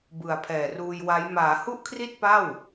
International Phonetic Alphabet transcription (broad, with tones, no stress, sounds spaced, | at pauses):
b ɯ˨˩ a̯ pʰ ɛː˨˩ r uː˧ j w a˦˥ j m aː˩˦ h u˥˩ ʔ kʰ r i˥˩ t̚ p a˥˩ w